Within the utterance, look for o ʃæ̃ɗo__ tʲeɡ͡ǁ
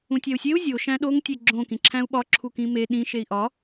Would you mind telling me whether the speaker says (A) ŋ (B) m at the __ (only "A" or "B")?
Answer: A